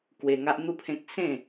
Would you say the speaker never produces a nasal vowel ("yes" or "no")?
no